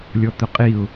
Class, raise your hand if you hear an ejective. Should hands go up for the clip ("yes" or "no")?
yes